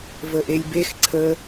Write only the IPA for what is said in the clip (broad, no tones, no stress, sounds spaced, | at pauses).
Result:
v ə ʔ e lʲ b e x ǀʰ ə